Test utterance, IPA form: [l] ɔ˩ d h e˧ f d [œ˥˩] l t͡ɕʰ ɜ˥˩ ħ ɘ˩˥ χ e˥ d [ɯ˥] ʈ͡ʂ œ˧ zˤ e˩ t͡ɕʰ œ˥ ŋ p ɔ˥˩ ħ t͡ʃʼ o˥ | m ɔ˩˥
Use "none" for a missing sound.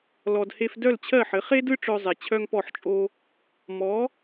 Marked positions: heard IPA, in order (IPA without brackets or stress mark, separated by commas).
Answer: l, œ˥˩, ɯ˥